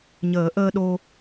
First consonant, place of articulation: palatal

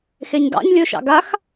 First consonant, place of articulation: velar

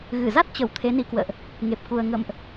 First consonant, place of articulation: velar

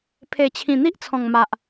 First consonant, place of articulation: labial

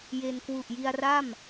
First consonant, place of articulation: palatal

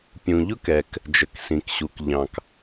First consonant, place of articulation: labial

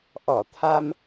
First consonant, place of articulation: glottal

